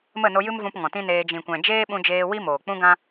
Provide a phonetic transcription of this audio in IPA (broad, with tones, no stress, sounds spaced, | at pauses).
m ə˦˨ n o˧ j ɨ˦ m v ũ˧ p ŋ ɔ̃˨ t ĩ˦ n eː˧ d͡ʒ ĩ˨ kʷ ɛ̃˨ d͡ʒ eː˦ ɓ ũ˧ d͡ʒ eː˧ w i˦ m oː˨ k͡p ũ˦ ɡ ã˦